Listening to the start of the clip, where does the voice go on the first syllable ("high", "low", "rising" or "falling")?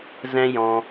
high